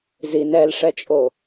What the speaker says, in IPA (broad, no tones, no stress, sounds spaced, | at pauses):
z i n ɛ l ʂ ɛ t͡ʃʼ o